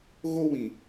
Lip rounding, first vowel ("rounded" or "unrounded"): rounded